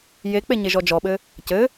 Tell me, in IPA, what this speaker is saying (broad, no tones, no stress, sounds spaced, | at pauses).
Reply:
j e k͡p e ɲ e ʒ ɔ d͡ʒ ɔ ɓ ɘ | c ɘ